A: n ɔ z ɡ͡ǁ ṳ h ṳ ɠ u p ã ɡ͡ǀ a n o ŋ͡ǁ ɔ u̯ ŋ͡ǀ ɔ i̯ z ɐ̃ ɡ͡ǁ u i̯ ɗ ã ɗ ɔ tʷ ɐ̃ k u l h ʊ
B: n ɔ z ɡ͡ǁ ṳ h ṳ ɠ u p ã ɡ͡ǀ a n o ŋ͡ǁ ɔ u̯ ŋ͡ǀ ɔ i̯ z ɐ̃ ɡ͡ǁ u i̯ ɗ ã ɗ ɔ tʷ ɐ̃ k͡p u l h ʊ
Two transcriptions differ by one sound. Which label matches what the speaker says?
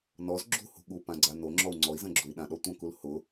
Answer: A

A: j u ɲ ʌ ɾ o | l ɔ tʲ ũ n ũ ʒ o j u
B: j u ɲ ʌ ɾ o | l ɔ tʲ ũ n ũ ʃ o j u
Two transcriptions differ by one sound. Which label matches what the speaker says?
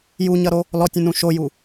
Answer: B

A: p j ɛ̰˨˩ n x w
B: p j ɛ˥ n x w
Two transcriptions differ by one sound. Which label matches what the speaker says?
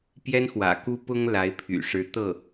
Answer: B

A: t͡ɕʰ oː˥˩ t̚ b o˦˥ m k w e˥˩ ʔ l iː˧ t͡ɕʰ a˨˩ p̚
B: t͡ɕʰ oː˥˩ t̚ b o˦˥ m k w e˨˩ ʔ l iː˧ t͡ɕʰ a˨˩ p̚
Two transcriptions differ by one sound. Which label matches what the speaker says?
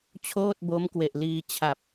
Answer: B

